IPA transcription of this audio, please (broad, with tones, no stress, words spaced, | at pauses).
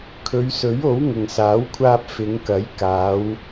kʰɵ˨˧ɥsɵ˨˥ɥo˨˥w ŋʊ˨ŋsaː˨˥wkʷʰaː˧p̚ fɪ˨˧ŋkɐ˨˥j kaː˨˧w